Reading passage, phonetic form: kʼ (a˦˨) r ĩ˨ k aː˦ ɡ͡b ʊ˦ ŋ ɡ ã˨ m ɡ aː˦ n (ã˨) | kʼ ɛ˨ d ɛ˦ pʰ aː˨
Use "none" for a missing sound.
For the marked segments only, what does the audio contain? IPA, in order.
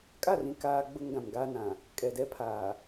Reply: a˦˨, ã˨

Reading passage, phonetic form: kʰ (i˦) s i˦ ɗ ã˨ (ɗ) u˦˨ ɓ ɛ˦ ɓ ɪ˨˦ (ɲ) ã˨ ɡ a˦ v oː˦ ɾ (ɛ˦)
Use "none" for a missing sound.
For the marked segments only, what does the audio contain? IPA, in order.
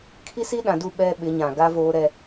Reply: i˦, d, ɲ, ɛ˦

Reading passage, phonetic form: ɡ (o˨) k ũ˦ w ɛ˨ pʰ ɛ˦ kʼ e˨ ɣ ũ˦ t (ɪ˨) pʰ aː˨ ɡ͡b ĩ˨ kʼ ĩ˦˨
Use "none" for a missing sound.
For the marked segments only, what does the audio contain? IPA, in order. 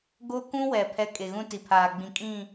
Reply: o˦, i˨

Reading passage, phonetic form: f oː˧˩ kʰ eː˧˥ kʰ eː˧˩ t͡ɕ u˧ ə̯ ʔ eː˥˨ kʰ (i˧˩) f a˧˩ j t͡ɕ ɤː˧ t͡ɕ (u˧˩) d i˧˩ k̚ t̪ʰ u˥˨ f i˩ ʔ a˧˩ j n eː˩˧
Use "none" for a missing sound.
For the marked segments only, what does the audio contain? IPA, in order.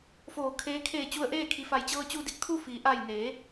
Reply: i˧˩, u˧

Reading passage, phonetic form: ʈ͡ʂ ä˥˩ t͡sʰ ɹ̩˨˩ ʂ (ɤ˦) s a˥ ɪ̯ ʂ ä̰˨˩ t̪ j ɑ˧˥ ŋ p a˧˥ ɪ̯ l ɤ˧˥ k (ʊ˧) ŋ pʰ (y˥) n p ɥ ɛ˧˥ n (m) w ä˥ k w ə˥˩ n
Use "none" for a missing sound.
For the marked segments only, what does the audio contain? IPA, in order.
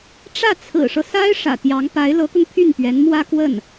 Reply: ɤ˦, ʊ˧, y˥˩, m

